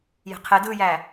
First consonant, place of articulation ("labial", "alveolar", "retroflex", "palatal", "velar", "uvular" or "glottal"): palatal